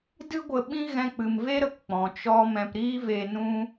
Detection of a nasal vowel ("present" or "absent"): present